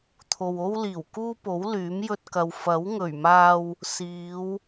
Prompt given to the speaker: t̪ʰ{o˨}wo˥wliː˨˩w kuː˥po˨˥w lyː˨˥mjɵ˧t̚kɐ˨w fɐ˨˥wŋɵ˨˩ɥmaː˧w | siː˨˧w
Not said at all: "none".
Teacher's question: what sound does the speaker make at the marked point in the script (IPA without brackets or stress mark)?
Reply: o˨